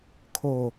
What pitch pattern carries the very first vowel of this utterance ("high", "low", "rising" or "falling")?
low